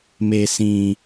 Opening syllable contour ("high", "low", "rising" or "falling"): low